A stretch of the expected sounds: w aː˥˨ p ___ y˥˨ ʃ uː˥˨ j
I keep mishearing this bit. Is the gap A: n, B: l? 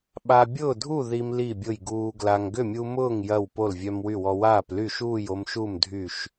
B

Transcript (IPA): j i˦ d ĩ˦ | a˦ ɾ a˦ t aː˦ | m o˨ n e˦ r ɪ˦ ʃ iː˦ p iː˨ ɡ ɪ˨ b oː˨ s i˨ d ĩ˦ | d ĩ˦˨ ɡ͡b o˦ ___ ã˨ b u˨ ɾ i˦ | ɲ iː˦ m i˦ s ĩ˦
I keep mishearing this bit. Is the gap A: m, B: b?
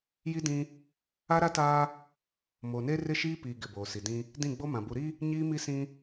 A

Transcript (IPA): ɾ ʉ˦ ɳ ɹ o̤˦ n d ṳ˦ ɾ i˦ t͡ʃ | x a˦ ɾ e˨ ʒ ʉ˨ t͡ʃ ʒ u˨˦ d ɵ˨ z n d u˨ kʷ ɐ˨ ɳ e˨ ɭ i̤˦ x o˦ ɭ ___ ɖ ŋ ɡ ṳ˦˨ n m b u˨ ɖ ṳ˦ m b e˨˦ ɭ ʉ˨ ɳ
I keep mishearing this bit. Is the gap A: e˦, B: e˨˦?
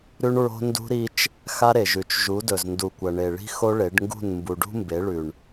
B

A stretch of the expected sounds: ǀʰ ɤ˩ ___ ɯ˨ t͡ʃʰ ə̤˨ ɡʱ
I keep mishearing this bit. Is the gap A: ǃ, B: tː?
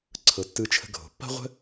B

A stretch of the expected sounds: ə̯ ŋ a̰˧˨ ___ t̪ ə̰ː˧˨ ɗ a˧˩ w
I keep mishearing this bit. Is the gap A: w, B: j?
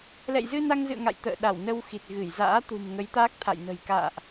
B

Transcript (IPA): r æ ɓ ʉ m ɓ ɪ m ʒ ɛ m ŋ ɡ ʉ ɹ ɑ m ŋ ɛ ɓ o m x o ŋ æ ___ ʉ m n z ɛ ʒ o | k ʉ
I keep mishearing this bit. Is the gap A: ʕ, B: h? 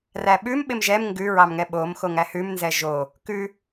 B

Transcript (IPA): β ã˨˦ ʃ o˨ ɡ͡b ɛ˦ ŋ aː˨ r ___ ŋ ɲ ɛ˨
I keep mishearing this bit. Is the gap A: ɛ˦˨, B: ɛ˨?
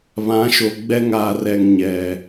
B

